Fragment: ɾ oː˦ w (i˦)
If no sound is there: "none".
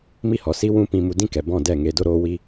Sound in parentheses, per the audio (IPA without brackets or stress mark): i˦